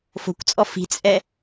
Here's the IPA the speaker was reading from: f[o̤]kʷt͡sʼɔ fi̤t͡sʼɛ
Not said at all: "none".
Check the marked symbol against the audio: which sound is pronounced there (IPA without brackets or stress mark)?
o̤